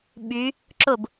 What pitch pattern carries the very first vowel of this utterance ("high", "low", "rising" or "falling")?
rising